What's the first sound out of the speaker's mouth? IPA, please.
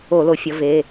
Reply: o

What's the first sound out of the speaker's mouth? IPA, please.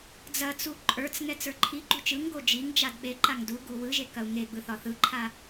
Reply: d͡z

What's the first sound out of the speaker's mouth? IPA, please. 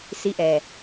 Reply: s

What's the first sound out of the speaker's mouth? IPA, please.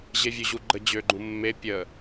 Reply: ʑ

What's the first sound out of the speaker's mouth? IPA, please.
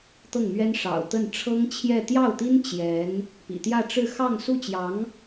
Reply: t̪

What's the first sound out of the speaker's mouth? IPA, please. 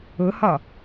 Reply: ʊ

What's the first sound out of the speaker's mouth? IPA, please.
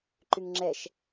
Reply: ǃ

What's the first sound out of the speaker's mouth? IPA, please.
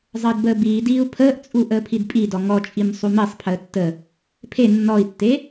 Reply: zˤ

